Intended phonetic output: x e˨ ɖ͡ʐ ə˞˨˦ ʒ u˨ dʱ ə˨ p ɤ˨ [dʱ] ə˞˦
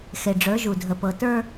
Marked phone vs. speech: incorrect: t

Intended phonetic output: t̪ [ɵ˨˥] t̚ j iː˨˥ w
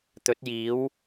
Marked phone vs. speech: correct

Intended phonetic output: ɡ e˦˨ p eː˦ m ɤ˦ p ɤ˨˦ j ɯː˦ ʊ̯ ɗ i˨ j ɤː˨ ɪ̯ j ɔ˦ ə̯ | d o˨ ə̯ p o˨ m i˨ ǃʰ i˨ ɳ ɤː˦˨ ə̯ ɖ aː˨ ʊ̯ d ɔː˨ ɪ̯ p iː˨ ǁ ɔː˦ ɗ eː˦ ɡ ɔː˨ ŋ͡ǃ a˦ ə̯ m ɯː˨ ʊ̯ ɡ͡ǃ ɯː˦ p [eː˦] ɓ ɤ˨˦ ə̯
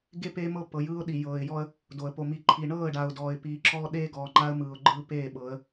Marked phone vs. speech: incorrect: eː˦˨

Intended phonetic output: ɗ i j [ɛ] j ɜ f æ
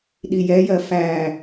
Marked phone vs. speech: correct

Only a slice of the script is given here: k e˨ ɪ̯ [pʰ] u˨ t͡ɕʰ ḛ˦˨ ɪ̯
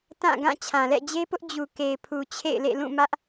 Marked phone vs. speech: correct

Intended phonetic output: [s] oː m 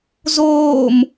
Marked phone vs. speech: incorrect: z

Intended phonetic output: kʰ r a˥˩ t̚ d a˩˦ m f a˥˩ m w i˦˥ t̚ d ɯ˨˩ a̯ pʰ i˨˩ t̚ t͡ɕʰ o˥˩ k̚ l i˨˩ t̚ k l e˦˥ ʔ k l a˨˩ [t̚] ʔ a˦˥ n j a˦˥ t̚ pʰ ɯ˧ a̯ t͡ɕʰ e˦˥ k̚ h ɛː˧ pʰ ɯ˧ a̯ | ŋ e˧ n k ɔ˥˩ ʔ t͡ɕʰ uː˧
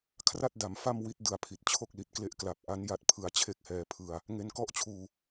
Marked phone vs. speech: incorrect: p̚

